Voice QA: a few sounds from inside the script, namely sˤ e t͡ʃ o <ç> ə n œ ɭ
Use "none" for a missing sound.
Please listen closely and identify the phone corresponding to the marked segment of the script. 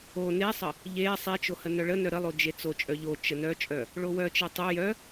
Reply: h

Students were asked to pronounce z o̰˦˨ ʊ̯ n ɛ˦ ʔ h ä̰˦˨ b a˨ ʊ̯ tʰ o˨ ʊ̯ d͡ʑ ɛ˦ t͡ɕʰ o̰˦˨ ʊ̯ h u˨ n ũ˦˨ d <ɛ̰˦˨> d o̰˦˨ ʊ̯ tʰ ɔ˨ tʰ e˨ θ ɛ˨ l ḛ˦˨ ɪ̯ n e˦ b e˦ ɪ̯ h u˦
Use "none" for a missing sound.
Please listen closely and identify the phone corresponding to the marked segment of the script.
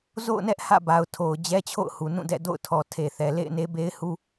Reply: ɛ̰˦˨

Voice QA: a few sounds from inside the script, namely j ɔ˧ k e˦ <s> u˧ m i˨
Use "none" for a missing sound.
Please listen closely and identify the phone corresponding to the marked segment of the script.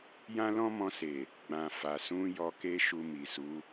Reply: ʃ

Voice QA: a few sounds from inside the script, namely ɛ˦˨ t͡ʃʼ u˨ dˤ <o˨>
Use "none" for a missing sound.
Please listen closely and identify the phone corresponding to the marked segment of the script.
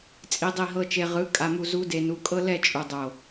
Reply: o˨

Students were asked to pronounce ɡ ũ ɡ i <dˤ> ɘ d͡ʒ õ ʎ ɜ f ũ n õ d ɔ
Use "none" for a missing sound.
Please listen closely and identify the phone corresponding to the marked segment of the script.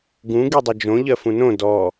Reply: dˤ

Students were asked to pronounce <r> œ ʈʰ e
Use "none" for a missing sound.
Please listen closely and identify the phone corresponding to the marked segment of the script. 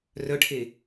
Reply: r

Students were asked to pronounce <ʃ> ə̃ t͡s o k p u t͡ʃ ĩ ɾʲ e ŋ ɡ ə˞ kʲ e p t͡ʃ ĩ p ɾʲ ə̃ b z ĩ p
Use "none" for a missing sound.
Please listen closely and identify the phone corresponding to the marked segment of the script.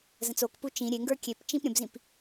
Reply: z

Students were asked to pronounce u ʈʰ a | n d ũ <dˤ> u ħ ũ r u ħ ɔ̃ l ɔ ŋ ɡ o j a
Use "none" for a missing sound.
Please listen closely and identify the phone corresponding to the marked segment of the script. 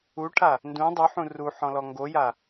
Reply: dˤ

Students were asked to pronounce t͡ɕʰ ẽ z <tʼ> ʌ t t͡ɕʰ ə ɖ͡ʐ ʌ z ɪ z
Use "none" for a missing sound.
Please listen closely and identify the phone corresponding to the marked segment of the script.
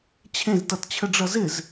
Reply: t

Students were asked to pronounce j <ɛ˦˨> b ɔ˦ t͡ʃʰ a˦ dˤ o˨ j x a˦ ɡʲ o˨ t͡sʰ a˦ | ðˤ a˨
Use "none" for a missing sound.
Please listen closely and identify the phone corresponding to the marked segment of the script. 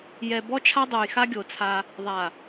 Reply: ɛ˨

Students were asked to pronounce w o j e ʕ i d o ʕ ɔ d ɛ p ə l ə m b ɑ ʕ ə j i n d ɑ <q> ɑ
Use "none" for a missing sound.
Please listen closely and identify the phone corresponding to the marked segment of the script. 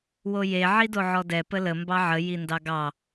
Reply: ɡ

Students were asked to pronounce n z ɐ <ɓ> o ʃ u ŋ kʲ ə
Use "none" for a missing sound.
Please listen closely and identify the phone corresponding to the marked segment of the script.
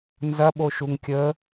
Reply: ɓ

